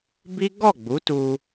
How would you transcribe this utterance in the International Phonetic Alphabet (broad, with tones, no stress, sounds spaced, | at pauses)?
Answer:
b i˦ ɡ ɔ˦˨ ɡ͡b u˨˦ t u˧